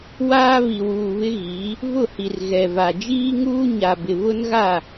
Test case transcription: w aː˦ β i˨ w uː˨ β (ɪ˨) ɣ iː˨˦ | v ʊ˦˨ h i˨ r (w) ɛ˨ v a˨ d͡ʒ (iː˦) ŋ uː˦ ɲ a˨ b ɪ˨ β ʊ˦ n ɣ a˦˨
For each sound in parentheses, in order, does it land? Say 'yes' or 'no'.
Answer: no, no, yes

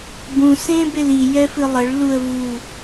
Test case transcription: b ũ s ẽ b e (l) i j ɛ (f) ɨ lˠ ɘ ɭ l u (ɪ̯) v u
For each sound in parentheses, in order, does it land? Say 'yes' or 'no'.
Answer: yes, yes, no

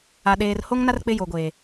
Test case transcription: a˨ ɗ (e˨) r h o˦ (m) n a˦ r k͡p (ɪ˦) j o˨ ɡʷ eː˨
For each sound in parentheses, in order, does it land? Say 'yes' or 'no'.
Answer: no, no, yes

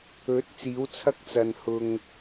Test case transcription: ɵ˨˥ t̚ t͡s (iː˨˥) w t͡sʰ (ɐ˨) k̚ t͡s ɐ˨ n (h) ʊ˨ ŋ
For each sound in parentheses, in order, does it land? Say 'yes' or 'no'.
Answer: yes, no, yes

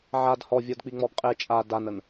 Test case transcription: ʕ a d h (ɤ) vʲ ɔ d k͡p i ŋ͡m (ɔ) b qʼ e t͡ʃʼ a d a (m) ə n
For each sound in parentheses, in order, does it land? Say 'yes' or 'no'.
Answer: no, yes, no

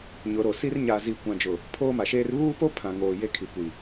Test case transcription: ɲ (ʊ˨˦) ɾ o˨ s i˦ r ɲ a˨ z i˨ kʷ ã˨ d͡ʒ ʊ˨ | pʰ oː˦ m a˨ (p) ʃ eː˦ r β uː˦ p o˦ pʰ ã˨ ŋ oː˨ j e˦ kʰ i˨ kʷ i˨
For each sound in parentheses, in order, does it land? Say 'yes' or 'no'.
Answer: yes, no

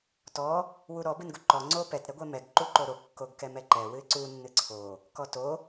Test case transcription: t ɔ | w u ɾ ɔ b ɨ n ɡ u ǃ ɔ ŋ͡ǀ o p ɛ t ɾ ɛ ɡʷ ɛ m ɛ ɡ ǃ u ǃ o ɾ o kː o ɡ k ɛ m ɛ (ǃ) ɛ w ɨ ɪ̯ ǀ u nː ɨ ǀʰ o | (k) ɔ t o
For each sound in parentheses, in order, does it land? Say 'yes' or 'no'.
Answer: yes, yes

